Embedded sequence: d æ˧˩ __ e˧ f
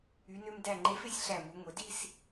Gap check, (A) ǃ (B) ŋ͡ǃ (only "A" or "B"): B